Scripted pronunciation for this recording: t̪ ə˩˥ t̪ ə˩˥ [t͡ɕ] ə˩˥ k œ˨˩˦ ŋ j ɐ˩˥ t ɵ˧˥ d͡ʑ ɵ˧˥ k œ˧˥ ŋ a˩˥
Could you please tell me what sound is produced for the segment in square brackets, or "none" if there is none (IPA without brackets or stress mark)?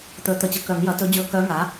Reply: t͡ɕ